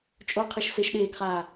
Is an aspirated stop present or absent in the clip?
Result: present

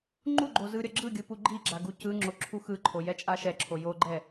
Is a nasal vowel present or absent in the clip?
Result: absent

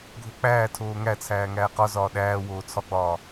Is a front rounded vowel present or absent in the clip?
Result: absent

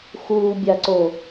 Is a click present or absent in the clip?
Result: present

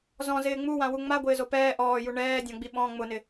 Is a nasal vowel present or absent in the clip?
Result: present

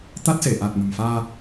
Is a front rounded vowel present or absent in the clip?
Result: absent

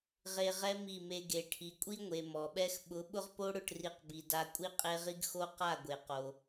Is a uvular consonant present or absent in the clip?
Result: present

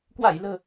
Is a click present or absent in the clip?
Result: absent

